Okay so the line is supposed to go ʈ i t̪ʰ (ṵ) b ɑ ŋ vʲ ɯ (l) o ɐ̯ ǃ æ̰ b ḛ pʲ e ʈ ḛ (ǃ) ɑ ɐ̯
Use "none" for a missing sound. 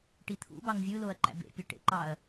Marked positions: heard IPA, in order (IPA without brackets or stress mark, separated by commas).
ṵ, l, ǃ